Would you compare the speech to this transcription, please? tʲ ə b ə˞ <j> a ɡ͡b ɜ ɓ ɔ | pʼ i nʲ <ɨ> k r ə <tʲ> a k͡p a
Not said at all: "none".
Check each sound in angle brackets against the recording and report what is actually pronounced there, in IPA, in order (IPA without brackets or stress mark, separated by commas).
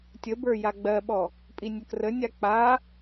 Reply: j, ə, nʲ